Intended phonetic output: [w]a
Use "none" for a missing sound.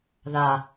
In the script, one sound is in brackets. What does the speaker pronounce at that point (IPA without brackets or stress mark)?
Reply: ð